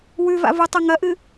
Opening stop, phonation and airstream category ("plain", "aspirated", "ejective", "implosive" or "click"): plain